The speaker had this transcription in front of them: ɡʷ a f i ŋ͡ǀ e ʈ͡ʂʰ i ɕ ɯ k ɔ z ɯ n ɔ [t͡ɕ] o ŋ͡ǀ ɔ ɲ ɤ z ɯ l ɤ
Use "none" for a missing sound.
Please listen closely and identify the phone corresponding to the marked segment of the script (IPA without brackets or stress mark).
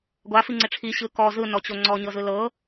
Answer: t͡ɕ